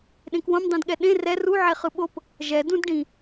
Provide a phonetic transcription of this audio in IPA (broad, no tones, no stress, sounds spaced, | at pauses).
ɗ ẽ k w õ m dˤ ĩ d ɠ ɛ ɗ ẽ r ɛ r u ʕ e χ ɯ ɓ o p | ʒ ɛ d ũ d ɖ ĩ